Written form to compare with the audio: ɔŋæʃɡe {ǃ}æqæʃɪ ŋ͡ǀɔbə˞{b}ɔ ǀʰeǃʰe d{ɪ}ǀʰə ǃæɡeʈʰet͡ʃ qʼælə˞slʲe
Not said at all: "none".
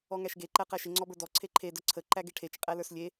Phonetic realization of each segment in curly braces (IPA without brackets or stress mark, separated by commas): ǃ, d, ə